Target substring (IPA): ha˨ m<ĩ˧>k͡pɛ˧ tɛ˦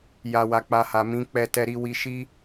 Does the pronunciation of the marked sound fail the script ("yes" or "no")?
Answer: yes